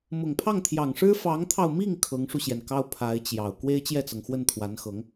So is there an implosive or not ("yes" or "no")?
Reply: no